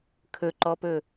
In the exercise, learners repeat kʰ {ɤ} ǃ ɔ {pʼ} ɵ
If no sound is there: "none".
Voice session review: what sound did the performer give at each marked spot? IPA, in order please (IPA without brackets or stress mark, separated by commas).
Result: ɵ, p